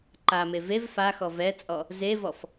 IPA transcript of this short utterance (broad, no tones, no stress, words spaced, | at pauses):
ǃame vev faxɔ vɛt͡sʼɔ | zevɔf